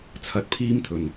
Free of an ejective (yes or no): yes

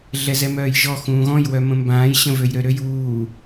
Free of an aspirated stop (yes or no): yes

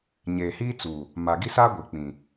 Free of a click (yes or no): yes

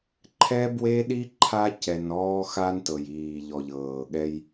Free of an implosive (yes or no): no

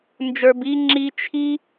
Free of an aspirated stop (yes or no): no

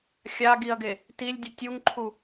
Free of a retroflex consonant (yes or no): yes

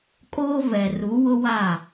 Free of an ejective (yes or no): no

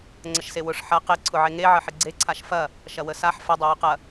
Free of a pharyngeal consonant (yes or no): no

